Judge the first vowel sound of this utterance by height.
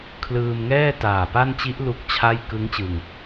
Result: high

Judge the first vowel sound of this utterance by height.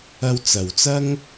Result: low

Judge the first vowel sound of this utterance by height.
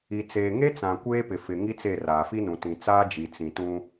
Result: high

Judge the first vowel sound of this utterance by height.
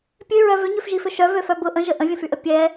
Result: mid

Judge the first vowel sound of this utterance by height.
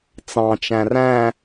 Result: low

